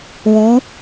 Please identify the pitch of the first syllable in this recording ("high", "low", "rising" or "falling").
rising